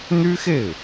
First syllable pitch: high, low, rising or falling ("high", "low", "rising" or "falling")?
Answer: high